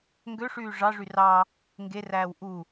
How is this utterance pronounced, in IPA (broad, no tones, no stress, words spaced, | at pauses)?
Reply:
ŋɡøʂyː ʐɑʐy rɑ | ŋɡeræːw ʔu